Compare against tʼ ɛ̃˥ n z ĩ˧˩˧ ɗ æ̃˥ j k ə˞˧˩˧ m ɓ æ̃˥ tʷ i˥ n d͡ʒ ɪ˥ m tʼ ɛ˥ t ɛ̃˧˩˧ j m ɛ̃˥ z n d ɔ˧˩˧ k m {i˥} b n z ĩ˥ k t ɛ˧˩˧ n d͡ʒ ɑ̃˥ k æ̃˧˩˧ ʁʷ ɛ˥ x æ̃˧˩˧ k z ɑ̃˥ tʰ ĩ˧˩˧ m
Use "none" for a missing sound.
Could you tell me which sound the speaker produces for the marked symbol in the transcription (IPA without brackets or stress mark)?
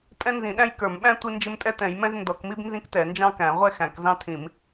i˥